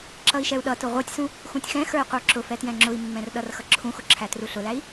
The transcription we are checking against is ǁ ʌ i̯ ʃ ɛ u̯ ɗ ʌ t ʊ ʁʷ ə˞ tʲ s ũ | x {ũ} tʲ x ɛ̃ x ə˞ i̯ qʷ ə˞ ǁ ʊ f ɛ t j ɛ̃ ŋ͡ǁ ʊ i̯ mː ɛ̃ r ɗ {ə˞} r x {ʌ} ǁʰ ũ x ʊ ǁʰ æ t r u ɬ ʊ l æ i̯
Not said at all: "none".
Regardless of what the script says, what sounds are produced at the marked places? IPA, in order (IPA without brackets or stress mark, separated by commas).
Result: ũ, ʌ, ʌ